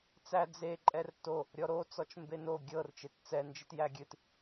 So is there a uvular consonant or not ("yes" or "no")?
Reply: no